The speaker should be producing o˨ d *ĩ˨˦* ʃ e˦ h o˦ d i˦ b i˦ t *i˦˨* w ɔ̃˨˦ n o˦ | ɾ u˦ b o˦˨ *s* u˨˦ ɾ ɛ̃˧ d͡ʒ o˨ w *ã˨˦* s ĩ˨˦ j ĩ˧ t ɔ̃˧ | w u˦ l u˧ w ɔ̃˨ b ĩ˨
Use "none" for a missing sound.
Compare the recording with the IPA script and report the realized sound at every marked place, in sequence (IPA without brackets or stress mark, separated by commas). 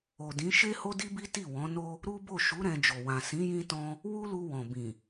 ĩ˨˦, i˦˨, ʃ, ã˨